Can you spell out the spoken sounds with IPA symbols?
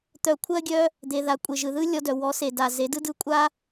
t̪ œ˨ kʷʰ ɜ˧ ɡʲ œ˧ | d̪ e˨ ð a˨ kʷʼ e˨ ʒ ɯ˨ ð ɯ˦ lʲ ɔ˧ d œ˨ w ɔ˨˦ s e˨ d a˨ z e˨˦ d ɯ˦ d ɯ˦˨ kʷʼ a˦

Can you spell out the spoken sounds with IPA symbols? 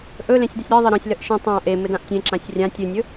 ʔ ɵ l ẽ sʲ d ə sʲ ɾ e ðˤ ɘ ɾ ɔ̃ sʲ l ə ʔ ʃ ẽ tˤ ã ʔ e m ɘ d ã ʔ tʲ ẽ ǁ ã sʲ rʲ ã tʲ ɨ nʲ ɵ

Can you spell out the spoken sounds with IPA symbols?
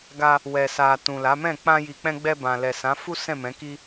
ɡ a˧ | w ɛ˨ s a˨ t ũ˨ l a˨˦ m ɛ̃˦˨ k͡p ã˧ j i˨ k͡p ɛ̃˧ ɡ͡b ɛ˧ b ã˨ l ɛ˨ s ã˨˦ f u˦ s ɛ̃˦˨ m ɛ̃˨˦ k i˦

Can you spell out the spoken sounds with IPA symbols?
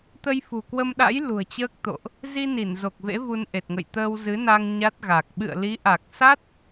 t̪ ə˧ j f ṳ˨˩ k w ə˧ m ɗ a̰˧˥ j l ṳ˨˩ ə̯ t͡ɕ əː˦˥ k̚ t̪ o̰˧˨ ʔ | z i˧ n i˧˩ n z o˨˩ k̚ v ḛ˧˥ v u˧ n ʔ e˨˩ t̚ ŋ ə̰˧˨ j t̪ əː˧ w z ɨ˨˦ n a˧ ŋ ɲ a˦˥ t̚ ɣ a˨˩ k̚ ɓ ɨ̰˧˨ ə̯ l i˨˦ ʔ a˨˩ k̚ s a˦˥ t̚

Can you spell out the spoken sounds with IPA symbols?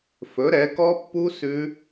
f ɵ˨˥ ɾ ɛ˨˥ k ɔ˦˥ pː u˦˥ s ʉ˦˥

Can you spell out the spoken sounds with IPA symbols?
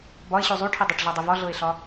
b ɒ e̯ ɕ u zˤ u ʈʰ i dˤ u ʈ ɮ ɑ dˤ i v ɒ ɮ ɤ e̯ ɬ ɒ

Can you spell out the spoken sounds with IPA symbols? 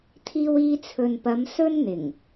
t̪ʰ iː˧ w iː˧ t͡sʰ ɵ˨ n p ɐ˨˧ m s ɵ˥ n n̪ ɪ˨˩ ŋ

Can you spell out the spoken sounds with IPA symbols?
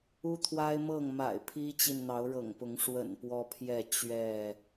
u˦ t̪ʰ w a˦ ɪ̯ m ɤ˥˨ ŋ m a̰˨˩ ɪ̯ pʰ i˦ t͡ɕ i˨ n n̪ ɑ˨˦ ʊ̯ ɻ ɤ̰˨˩ ŋ p ʊ˨˦ ŋ ʂ w ə̰˨˩ n p w ɔ˦ pʰ j ɛ˥˨ t͡ɕ ɥ ɛ˥˨

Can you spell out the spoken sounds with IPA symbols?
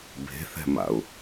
b e̤ θ ɛ̤ m a̰ ʊ̯

